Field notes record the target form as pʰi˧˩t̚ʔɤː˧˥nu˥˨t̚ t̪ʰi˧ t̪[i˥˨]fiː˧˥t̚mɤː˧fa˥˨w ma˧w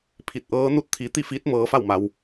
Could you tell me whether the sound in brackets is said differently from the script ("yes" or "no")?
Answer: no